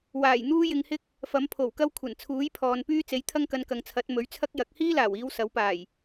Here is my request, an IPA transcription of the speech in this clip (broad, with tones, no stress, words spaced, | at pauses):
waː˨˩j n̪uː˥ jɪ˧ŋhɪ˥k̚ | fɐ˨˥mpʰo˨˩wkɐ˥wkʷʰɐ˨˩n t͡sʰuː˨˥jpʰɔː˨npyː˥ t͡se˨˥jt̪ʰɐ˥ŋkɐ˧n kɐ˨ŋt͡sʰɐ˨˥t̚mɵ˨˥ɥ t͡sʰɐ˥k̚jɐ˨˥k̚ hiː˥laː˨˩wiː˨˧w sɐ˨˥wpaː˨˩j